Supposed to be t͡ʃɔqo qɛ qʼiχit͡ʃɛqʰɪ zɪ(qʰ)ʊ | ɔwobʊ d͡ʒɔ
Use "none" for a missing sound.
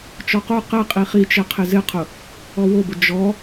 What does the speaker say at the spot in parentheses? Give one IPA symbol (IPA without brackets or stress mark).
qʰ